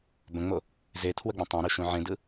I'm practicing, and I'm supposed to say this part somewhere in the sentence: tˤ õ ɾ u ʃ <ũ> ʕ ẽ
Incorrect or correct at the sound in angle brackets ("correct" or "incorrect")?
correct